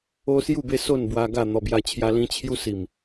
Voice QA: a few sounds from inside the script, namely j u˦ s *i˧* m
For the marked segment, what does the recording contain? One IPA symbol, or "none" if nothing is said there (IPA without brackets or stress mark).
i˨˩